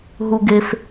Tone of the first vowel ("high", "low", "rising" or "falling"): high